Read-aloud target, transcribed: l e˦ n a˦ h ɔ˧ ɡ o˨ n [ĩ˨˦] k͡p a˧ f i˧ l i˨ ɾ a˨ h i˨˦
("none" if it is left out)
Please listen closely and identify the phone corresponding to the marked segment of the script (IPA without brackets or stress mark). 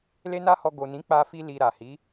ĩ˨˦